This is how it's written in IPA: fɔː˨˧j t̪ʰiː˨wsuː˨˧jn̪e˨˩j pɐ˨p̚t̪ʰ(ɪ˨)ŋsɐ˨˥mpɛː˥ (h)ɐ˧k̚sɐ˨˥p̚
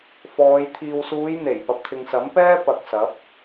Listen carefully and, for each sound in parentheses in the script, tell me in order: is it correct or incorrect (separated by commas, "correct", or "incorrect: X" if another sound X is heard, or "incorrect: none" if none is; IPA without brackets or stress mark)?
correct, incorrect: p